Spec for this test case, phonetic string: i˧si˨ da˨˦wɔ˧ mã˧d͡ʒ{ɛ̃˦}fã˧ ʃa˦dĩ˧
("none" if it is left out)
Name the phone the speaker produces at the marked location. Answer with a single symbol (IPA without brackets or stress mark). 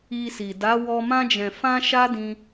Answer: ɛ̃˨